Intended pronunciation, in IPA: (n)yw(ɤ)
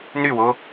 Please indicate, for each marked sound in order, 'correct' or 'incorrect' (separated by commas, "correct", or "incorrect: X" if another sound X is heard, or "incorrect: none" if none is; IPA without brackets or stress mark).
correct, incorrect: o